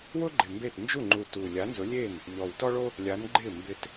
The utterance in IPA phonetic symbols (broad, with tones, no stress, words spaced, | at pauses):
wʊ˥ɡ͡ǃɪ˨˩ mbe˥˩t nd͡ʒu˥˩ŋ͡ǃu˨˩ tu˨˩ lʲa˨˥nzʊ˨˥lʲe˥˩n | ʎɔ˨˩wtɔ˥ɭo˥ | lʲa˨˥nɡ͡ǃɪ˥˩ mbɪ˧t